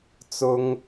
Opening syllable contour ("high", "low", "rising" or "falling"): high